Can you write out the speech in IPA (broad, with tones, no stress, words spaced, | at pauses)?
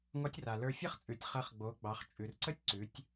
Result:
ŋɔ˧˥tʲra˩lə˞˧ fʲɐ˥χt͡sʼʉ˩˧tʲ χɐ˧˥χɡ͡bo˩˧ɡ͡bɑ˩˧χ t͡ʃʼʉ˩rǀə˥tʲǀʉ˩˧tʲ